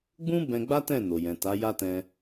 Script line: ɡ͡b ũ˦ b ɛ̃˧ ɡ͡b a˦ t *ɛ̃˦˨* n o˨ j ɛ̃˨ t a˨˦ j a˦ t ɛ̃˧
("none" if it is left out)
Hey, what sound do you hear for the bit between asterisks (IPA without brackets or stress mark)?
ɛ̃˦˨